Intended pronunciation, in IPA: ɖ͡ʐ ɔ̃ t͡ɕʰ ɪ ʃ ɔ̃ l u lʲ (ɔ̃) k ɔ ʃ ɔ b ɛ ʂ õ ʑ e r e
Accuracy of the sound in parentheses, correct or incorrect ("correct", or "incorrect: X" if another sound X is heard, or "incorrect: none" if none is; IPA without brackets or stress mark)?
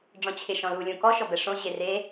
incorrect: õ